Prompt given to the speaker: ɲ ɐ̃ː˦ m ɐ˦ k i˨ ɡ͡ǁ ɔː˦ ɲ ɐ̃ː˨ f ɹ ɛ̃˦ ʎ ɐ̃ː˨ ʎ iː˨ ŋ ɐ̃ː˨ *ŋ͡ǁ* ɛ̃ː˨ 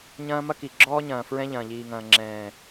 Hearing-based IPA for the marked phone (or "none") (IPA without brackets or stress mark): ŋ͡ǁ